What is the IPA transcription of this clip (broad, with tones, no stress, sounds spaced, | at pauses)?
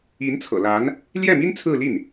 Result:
i˧˥ n t͡sʰ ɤ̰˨˩ l a˧˥ n | l j ɛ˥˩ m i˥ n t͡sʰ ɹ̩˥˧ l i˥˩ n